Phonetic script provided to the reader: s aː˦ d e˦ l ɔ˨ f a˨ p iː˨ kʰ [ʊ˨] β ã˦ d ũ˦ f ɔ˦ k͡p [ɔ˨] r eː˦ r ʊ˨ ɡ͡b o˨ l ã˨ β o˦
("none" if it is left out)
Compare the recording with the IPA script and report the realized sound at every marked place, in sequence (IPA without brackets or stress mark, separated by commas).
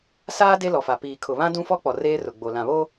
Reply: ʊ˨, ɔ˨